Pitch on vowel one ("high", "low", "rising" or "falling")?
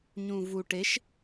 low